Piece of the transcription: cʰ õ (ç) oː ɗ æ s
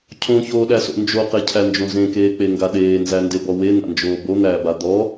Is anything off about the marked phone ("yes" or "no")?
no